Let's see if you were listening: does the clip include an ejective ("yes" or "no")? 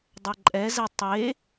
yes